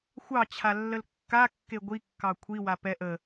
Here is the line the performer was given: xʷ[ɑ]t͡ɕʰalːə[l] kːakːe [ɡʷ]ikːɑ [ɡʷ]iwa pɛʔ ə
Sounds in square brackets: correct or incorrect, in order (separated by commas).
correct, correct, correct, incorrect